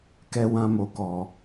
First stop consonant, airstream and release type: plain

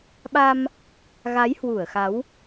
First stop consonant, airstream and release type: implosive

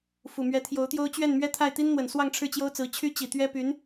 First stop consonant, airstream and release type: aspirated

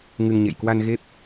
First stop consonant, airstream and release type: plain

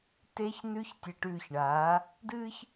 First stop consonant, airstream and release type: plain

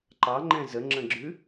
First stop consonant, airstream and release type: click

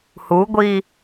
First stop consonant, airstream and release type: plain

